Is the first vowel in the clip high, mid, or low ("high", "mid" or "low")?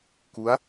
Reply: high